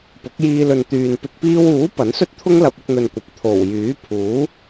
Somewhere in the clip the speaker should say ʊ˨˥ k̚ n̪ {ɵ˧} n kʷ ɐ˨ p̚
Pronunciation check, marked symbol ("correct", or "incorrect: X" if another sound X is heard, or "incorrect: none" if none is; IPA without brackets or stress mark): correct